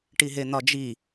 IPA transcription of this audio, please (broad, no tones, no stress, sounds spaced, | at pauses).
ʈ i ɦ e n̪ ɒ d͡ʒ i